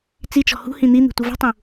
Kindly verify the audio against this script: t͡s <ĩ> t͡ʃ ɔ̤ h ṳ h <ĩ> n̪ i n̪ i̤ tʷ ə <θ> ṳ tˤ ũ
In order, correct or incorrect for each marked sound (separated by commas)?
incorrect, correct, incorrect